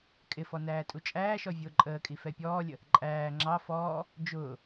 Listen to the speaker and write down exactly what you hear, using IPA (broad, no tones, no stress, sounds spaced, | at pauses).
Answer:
kʼ ɪ f ɔ n æː tʼ u t͡ʃʼ æː ʃ ɔ vʲ ʊː ǃʼ əː kʼ i f ɛ pʲ ɔː lʲ ə | ǃʼ æː ŋ͡ǁ ɑ f ɔː | d͡ʒ ʊː